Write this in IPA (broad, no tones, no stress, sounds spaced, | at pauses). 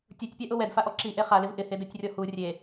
tʲ o tʲ pʲ a ʔ ʊ w ɛ d f a ʔ ɔ ǁ i ʔ e χ a l ɪ v ʔ ɪ h e d ɛ tʲ rʲ ɔ h u rʲ e